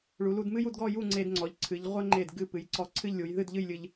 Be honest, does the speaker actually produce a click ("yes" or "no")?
yes